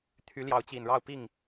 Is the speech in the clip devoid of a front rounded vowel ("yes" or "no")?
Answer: no